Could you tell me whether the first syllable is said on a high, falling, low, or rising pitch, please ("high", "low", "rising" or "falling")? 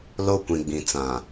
high